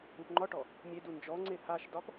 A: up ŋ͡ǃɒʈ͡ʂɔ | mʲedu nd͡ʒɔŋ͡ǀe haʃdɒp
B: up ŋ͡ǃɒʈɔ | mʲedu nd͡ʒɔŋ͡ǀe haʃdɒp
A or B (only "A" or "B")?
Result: B